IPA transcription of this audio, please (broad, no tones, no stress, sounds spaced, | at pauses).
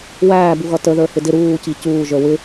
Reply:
w æː b u ɣ ʌ t ə ð ə˞ h ɪ d ɪ ɾ uː c i c uː ʒ ə˞ w ɪ